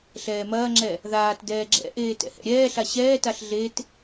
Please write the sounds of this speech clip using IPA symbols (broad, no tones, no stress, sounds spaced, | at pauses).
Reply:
ɬ ɛː m ɐː ŋ͡ǁ ɛ | ð aː t d ɛː ɡ͡ǁ ɛ̰ ʔ eː t ɛ̰ h ɛ̰ ɾʲ ɛː ɬ a ɕ ɛː t a ɬ ɮ e t